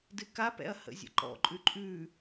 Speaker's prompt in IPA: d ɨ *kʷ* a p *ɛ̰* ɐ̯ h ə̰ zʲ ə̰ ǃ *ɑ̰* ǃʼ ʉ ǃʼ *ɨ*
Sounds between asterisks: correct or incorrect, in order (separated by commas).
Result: incorrect, correct, incorrect, incorrect